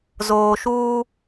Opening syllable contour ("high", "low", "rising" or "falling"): low